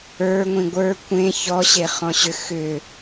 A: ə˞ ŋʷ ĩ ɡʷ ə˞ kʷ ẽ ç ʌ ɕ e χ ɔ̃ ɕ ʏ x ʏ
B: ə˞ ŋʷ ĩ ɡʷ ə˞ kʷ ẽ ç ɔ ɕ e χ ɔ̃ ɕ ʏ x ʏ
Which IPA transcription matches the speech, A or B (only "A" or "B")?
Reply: B